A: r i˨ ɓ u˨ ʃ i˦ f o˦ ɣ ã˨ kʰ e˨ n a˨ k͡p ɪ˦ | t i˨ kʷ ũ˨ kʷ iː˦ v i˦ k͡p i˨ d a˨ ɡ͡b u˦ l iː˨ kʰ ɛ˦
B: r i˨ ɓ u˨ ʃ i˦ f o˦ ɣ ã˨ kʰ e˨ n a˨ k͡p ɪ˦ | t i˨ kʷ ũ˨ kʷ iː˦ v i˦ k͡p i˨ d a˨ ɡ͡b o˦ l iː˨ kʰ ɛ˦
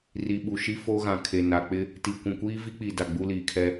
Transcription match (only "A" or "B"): A